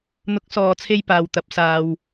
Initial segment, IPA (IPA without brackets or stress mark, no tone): n̪